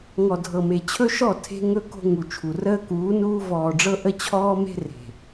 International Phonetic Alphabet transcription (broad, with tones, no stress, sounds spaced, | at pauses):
ŋ ɔ˨ dʱ ɤ˨ m e˨ t͡ɕʰ ɵ˦ ʃ ɔ˦˨ tʰ e̤˦ ŋ ɵ˦ k o̤˦ ŋ u˨ t͡ʃʰ u˨ r əː˦ k uː˨˦ n uː˦ v ɔː˨ ɖ͡ʐ ɤ˦ ʔ ə˦ t͡ɕʰ ɔː˦ m e̤˦ r e̤˨